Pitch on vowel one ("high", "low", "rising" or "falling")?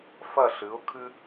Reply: falling